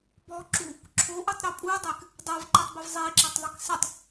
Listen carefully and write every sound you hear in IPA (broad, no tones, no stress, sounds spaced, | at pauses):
b ɔ ǁ u | ǁʰ o ʔ u tˤ ɾ e pʼ u dˤ e k | dˤ o v ǃ e tˤ b ɪ v zˤ i ǁ e tˤ ðˤ i k s ɪ tˤ